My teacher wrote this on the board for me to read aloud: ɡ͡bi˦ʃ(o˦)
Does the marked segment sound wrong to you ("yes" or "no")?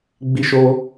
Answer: no